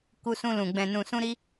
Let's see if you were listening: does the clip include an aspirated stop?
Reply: no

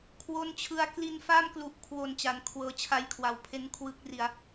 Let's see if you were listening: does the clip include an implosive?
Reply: no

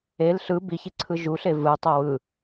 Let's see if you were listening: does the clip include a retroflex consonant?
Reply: no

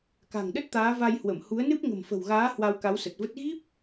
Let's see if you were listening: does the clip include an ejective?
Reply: no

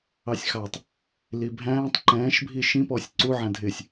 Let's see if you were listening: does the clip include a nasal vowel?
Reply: yes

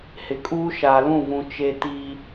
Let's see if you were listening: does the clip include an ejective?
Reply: yes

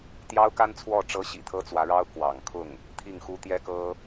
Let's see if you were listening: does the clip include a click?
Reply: no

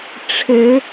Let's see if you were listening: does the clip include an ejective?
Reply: no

